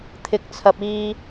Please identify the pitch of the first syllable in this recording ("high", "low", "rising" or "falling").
low